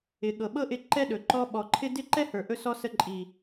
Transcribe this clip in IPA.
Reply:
ɪ˨ ɠ ɤ˨ ɓ ɤ˦ ʔ ɪ˧ ǃ ɛ˦ ɗ ɵ˨ ǃ ɔ˧ ɓ ɔ˨ ǃʰ ɪ˦ d ɪ˦ ǃ ɛ˦ h ə˞˨ ʔ ɵ˧ s ɔ˧ s ə˧ ǃʼ i˨

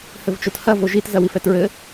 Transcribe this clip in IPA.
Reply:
h ɘ v t͡ʃ o t h ɐ v o ʒ i t z ɐ w i f ɛ t ɹ ɘ

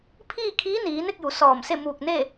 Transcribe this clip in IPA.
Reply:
pʰ iː˥˨ kʰ iː˧˥ n iː˩˧ n e˥˨ k̚ j u˩˧ s ɔː˧˩ m s e˥˨ m uː˧˩ k̚ n e˥˨

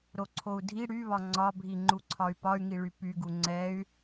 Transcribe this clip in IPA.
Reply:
ɾ o ǀʰ o u̯ dʱ i ɽ y β ɒ ŋ͡ǀ ɒ bʱ i ŋ͡ǃ u ǀʰ ɒ y̯ p ɒ y̯ ŋ i ɭ y p y ɡ u ŋ͡ǀ ɛ y̯

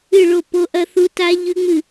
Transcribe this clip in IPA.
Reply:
ɨ˦˨ ɭ o˦˨ p o˦˥ ʔ ɐ˦˥ θ u˦˥ t a˦˥ ʎ ʉ˦˥ ŋ͡m ɨ˦˨

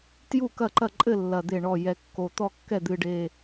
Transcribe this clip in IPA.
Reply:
t j u˥˩ k ɐ˥˩ ǃ ɐ˥˩ ǃʼ ɘ˥˩ lː ɐ˨˩ d̪ e˥˩ ɳ ɔ˥˩ j ɛ˨˩ kː o˨˩ t̪ ɔ˥˩ kː ɛ˥˩ d̪ ɨ˨˩ ɖ e˨˩

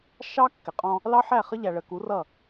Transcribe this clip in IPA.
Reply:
ʃ ɑ˦ kː ɪ˨ qʼ ɔ̃˦ | l ɑ˦ ħ æ˦˨ χ ə˦ ʎ æ˨ ɭ ə˨ k u˨˦ r ʌ˦˨

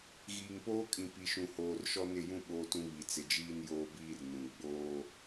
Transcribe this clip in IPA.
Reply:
ɣ iː˨ ŋ p oː˦ kʼ ĩ˨ p i˨ ʃ ũ˨ h oː˨ r ʃ ɔ˦ n ɪ˦˨ j ũ˦ ɓ oː˦ t ũ˦ β i˨ t͡s ɪ˨ d͡ʒ iː˦ n j oː˦ b iː˦ r n ũ˨ ɡ͡b oː˦

